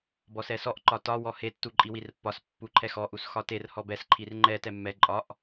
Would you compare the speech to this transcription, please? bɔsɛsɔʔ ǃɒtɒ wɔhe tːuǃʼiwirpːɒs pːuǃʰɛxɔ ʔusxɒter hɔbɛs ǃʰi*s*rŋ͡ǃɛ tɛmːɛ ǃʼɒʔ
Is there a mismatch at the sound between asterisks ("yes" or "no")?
yes